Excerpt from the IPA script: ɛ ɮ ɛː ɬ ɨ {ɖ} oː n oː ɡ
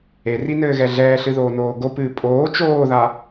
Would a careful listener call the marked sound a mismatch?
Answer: yes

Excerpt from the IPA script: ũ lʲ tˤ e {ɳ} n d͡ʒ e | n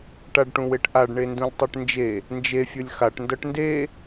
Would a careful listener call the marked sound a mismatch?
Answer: yes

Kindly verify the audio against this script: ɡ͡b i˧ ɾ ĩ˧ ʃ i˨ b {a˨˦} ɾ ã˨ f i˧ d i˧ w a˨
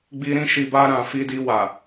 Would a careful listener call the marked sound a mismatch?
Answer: yes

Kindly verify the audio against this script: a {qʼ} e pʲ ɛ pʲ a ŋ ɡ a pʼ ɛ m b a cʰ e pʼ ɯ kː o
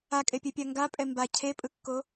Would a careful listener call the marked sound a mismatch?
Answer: yes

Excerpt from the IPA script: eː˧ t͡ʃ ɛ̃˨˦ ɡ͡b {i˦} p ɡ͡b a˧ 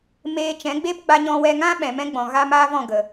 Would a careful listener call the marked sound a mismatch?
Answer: yes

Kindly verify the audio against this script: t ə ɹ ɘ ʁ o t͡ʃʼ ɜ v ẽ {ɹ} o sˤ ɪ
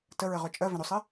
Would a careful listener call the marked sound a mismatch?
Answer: yes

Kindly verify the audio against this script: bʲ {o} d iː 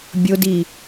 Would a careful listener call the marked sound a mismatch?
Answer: no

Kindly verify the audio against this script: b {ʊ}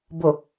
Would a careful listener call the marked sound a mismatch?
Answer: no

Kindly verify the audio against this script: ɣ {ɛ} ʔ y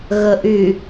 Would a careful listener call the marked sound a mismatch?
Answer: yes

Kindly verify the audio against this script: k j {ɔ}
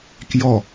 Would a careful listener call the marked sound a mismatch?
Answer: no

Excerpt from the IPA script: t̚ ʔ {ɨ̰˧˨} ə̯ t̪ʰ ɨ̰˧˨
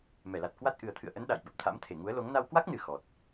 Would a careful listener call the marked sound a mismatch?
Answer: yes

